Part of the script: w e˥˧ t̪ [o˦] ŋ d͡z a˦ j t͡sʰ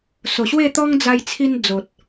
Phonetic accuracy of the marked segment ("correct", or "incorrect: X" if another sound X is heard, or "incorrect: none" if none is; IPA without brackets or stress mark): incorrect: ɔ˦